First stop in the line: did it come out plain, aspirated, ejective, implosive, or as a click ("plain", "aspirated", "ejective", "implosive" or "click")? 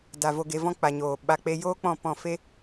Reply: plain